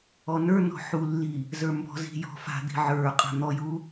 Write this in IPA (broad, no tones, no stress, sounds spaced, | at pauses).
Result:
ɔ n ə˞ n ɔ̤ ħ u lː i | z ə˞ m b ɔ̤ z i̤ j ɔ̤ f a̤ d̪ i̤ ʕ ə˞ qʼ a̤ n̪ ɔ j u